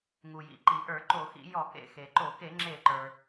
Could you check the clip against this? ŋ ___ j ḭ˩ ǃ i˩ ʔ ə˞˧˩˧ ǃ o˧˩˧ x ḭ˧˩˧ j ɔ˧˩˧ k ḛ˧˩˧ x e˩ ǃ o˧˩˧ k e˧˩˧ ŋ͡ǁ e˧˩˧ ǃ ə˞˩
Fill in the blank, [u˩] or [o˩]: u˩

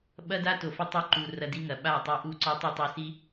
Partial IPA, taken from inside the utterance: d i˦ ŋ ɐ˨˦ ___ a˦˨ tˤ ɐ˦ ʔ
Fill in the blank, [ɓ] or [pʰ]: ɓ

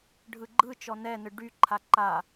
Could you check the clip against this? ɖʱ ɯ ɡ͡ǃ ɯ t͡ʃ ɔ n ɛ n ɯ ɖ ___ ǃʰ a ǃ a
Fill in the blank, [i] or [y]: y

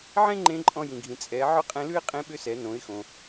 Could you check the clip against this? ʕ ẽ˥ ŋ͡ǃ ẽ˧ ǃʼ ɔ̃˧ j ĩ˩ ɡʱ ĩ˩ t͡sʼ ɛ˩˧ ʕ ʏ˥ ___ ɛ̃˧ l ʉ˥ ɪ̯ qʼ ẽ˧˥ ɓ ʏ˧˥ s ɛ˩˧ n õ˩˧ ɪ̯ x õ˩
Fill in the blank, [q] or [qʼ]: qʼ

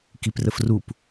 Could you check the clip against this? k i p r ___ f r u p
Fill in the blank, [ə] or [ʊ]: ə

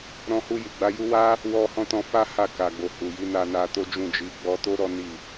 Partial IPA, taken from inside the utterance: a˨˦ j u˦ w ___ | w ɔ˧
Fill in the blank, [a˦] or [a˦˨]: a˦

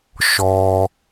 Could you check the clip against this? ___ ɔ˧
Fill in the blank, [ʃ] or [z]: ʃ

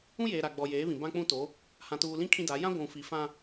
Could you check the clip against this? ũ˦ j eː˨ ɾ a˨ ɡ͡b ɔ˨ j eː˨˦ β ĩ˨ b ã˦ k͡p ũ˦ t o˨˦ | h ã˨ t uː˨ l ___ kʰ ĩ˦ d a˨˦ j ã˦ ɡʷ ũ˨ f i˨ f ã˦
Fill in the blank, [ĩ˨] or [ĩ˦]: ĩ˦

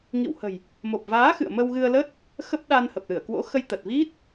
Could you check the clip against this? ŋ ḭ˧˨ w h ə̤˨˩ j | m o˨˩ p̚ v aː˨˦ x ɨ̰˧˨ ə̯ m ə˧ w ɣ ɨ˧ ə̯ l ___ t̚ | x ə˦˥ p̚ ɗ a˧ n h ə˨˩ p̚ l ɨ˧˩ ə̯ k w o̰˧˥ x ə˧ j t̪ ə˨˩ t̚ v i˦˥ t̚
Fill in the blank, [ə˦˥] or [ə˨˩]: ə˦˥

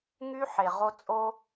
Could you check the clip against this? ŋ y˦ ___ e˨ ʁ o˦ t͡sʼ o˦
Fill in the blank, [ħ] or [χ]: ħ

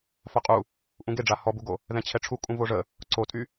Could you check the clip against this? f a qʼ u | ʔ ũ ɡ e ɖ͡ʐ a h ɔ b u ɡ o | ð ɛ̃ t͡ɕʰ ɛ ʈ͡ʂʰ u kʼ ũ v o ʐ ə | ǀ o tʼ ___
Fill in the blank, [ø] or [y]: y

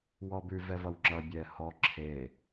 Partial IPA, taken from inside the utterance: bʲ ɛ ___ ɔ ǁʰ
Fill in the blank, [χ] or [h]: h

